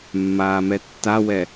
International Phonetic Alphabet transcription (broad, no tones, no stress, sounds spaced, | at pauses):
mː aː m ɛ tː a w ɛ